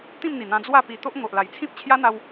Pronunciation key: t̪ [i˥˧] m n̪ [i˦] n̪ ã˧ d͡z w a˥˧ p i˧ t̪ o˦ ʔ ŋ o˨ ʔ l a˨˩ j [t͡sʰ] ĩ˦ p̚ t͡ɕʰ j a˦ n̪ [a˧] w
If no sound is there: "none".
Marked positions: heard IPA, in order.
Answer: ĩ˥˧, i˨˩, t͡sʰ, a˧

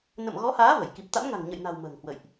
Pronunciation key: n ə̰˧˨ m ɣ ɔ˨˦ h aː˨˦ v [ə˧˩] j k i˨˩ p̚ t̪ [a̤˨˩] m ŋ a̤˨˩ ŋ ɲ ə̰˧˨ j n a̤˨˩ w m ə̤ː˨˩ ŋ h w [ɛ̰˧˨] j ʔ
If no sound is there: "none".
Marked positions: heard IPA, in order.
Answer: ə˧˩, a̰˧˥, ə̰˧˨

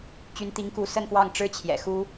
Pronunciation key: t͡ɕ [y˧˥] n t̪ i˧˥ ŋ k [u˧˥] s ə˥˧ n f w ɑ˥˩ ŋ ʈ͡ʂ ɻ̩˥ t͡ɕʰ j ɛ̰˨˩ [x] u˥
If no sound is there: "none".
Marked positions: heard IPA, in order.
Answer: y˧˥, u˧˥, x

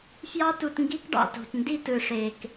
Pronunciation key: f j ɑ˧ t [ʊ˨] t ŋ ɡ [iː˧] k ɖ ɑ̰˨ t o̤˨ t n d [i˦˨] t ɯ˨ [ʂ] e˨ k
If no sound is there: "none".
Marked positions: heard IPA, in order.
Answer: u˨, i˧, i˦˨, ʂ

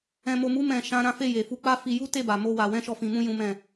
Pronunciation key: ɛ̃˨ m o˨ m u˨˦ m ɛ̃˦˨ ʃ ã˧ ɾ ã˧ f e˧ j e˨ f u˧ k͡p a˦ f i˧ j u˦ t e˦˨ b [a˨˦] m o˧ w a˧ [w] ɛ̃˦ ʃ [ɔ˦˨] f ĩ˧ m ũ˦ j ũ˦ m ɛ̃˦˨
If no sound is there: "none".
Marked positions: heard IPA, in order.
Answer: a˨, w, ɔ˦˨

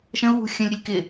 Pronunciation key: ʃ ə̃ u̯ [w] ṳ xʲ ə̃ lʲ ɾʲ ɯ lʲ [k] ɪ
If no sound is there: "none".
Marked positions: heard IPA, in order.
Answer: w, k

